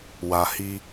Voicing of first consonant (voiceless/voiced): voiced